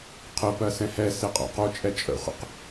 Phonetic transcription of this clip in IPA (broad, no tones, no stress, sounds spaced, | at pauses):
qʰ ə p ɜ s ɛ̃ h ɛ s e qʼ a̰ q o t͡ʃʼ ɛ t͡ʃʼ ə̰ χʷ ə̰ q